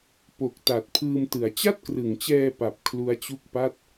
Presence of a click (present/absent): absent